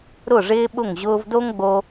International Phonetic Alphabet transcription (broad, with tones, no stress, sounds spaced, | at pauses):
ɾ ʊ˦˨ ʐ ɪː˦ ɓ ʊ˦˨ ŋ ʑ ʊː˧ v d o˦ ŋ ɡ͡b o˧